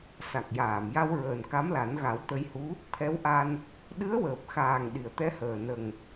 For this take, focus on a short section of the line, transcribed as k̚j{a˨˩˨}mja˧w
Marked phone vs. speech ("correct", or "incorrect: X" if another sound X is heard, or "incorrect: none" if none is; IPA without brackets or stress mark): incorrect: aː˨˩˨